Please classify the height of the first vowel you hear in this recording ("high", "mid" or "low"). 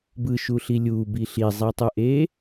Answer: high